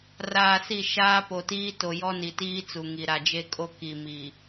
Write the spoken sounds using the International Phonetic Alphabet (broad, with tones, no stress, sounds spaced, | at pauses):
r aː˨ s i˦˨ ʃ aː˦ p o˨ t iː˦ t o˨ j ɔ˦ n i˨ t iː˦ t͡s u˨ ŋ i˨ ɾ a˨ d͡ʒ e˦ kʼ o˦ k i˨ m i˨